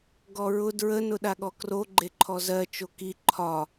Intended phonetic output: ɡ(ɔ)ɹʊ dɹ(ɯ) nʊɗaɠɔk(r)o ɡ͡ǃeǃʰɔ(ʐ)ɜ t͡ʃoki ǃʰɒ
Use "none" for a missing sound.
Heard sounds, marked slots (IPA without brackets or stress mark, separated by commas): ɔ, ə, r, z